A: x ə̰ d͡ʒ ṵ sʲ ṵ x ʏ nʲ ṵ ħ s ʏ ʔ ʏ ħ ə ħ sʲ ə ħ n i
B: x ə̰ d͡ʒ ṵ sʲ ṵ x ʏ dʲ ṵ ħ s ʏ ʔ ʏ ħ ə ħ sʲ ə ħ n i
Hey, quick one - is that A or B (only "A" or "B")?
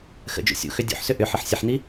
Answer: B